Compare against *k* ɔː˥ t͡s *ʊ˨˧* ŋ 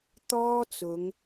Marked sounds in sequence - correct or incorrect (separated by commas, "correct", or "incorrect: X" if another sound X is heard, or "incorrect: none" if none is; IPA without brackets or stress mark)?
incorrect: t̪, correct